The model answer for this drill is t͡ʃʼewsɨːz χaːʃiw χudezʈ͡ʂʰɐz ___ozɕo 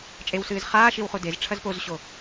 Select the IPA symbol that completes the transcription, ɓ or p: p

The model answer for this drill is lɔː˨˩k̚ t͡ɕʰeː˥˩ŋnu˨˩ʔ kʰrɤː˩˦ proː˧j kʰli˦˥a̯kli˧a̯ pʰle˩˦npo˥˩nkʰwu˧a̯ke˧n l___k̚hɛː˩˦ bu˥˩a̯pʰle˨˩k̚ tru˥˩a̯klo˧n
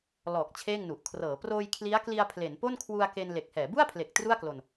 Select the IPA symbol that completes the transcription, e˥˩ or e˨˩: e˨˩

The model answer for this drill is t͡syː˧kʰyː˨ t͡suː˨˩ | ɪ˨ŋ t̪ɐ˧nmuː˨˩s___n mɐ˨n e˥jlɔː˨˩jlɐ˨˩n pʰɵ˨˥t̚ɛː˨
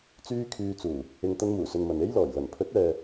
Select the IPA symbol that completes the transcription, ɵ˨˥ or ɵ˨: ɵ˨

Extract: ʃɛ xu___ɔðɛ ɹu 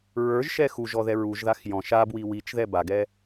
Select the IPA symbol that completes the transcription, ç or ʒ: ʒ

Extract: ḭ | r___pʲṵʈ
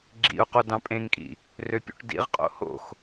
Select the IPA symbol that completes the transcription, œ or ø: ø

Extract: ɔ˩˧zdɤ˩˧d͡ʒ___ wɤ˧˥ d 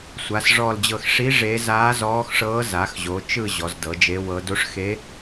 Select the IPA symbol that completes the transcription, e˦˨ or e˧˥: e˧˥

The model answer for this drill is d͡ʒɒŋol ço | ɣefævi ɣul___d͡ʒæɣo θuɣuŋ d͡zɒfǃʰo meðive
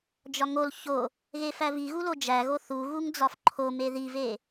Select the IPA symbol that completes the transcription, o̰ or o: o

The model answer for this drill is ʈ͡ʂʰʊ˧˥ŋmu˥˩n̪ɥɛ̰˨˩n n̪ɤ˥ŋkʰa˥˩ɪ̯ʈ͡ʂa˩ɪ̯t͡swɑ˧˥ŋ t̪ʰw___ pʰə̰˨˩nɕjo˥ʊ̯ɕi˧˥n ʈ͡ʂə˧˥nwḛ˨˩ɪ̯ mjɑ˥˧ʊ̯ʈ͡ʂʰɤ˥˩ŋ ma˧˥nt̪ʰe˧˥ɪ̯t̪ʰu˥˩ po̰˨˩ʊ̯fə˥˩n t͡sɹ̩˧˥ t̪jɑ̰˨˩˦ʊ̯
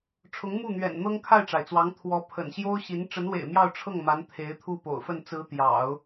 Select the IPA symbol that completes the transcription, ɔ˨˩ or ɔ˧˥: ɔ˧˥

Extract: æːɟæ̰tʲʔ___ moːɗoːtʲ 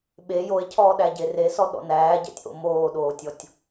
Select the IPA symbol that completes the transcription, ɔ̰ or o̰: o̰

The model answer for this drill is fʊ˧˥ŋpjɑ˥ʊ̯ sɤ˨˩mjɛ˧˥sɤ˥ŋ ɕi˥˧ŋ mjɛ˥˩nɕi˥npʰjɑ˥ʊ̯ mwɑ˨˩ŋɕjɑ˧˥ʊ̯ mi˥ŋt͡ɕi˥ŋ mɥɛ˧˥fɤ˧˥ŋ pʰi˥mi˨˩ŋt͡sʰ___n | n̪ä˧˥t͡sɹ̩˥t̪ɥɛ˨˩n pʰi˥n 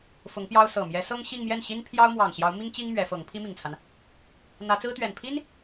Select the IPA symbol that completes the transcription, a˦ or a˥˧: a˦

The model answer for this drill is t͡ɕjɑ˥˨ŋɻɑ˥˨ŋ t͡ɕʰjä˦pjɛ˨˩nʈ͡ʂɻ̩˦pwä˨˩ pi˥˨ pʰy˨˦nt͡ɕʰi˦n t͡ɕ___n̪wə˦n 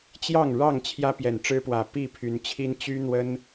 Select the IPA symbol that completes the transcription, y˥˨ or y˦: y˦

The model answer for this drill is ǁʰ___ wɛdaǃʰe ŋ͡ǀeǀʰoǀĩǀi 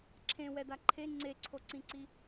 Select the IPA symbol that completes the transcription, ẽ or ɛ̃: ẽ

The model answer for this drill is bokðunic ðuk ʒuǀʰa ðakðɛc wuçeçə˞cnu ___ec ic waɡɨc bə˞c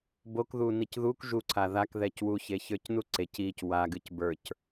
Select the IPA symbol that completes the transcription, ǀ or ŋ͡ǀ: ǀ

